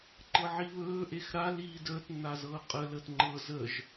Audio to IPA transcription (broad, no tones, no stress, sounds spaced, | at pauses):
ǃ ɤ ʕ i β ɵː ʔ e x ɾ a l iː d əː t nː a z ɤː qʼ ə l əː t ŋ͡ǃ ɤ z ə ʒ